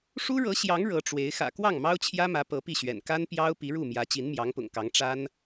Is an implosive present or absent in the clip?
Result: absent